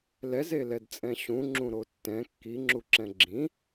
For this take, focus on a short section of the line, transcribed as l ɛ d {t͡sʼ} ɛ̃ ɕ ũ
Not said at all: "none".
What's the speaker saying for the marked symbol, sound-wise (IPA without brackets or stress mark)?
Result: t͡sʼ